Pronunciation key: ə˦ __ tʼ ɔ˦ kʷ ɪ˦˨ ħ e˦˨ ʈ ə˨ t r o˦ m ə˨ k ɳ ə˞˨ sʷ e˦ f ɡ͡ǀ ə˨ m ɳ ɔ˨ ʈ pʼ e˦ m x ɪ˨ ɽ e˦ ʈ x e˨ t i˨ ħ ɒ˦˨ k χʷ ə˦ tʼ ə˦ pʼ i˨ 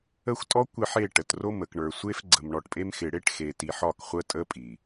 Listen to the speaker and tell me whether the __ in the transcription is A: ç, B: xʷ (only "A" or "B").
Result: B